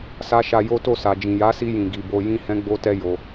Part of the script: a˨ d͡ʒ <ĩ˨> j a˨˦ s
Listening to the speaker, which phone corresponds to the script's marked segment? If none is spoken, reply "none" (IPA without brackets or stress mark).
ĩ˨